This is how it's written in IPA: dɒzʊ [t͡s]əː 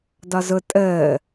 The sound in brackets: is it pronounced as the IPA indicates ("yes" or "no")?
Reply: no